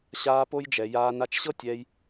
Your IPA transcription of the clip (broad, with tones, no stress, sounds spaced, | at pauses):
ɕ aː˧ p o˧ j d͡ʒ ɛ˨ j aː˧ n a˧ t͡ʃ ɕ ɤ˦ tʲ ɛː˧ j